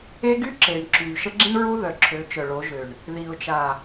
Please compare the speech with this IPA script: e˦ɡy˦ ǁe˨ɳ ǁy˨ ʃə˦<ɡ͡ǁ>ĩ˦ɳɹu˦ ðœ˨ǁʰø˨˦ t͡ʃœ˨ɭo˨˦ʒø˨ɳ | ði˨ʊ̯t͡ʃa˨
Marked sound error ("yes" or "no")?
no